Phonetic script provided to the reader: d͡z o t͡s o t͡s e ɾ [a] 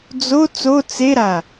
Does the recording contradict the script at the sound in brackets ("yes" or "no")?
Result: no